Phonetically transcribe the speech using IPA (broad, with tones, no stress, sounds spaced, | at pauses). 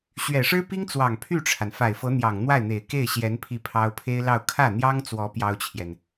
ɕ ɥ ɛ˨˩ ʂ ɻ̩˥ p i˥ ŋ t͡s w ɑ˨˩ ŋ pʰ y˥˩ ʈ͡ʂʰ a˩ n f a˨˩ ɪ̯ f ɤ˧˥ n̪ j ɑ˨˩ ŋ n̪ w a˥˩ ɪ̯ n̪ e˨˩ ɪ̯ k e˥˩ ɪ̯ ɕ j ɛ˧˥ n pʰ i˥˩ pʰ ɑ˥ ʊ̯ pʰ e˥ ɪ̯ l ɑ˥˧ ʊ̯ kʰ ä˥˩ n̪ j ɑ˥ ŋ t͡s w ɔ˧˥ p j ɑ˥ ʊ̯ t͡ɕʰ j ɛ˨ n